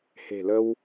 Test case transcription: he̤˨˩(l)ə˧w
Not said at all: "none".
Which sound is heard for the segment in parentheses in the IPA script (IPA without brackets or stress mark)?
l